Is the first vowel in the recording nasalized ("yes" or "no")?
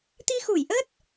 no